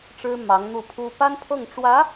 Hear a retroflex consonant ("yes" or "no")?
yes